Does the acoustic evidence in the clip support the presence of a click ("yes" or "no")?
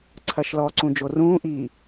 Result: yes